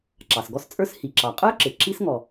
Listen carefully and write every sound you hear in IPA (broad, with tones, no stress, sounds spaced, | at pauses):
ǁ ɑ˩ s ɡ ɔ˥ s t͡sʼ ə˞˥ s h i˩ ǁ ɑ˩ qʼ ə˞˥ ǁ ɪ˩ ǁ i˥ s ŋ ɔ˩